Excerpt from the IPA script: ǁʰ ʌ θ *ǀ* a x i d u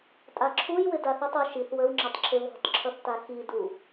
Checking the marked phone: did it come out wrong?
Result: yes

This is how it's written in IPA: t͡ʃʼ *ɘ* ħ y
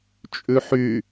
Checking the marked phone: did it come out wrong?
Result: yes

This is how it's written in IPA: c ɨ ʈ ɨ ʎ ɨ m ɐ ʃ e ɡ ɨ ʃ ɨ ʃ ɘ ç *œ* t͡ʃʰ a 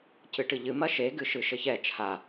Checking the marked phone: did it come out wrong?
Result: yes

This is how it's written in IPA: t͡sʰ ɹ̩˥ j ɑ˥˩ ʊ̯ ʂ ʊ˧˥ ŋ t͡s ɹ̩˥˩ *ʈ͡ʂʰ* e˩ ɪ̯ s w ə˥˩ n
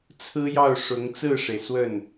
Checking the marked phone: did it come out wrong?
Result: yes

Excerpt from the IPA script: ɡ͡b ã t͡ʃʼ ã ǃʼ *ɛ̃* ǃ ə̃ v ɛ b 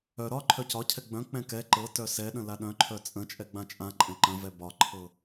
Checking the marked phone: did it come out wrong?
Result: no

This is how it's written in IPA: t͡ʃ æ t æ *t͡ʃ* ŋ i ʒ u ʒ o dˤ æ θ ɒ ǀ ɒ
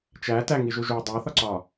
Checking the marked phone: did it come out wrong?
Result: yes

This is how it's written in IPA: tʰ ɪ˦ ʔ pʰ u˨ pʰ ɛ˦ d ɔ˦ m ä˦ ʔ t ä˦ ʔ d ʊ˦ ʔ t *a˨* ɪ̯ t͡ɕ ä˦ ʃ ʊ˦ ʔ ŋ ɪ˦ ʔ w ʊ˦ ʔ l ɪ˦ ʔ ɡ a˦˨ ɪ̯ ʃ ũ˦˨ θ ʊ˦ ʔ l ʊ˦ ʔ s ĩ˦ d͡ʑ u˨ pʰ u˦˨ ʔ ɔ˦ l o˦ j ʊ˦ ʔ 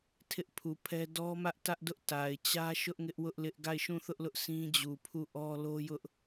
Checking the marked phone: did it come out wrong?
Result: no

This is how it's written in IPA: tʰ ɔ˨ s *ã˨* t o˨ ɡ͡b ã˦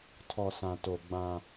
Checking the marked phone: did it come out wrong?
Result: no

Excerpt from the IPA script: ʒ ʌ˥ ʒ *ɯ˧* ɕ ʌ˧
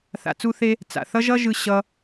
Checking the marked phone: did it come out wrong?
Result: no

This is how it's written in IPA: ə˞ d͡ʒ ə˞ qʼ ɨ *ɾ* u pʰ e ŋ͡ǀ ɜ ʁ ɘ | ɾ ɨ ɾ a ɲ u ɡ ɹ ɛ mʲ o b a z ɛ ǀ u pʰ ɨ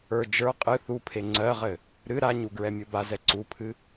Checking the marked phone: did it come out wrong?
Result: yes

